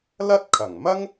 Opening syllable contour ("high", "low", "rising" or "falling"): high